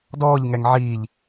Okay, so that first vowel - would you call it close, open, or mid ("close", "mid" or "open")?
mid